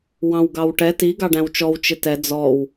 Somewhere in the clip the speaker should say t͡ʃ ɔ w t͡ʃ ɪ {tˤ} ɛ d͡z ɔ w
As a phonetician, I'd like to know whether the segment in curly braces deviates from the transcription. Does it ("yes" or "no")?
yes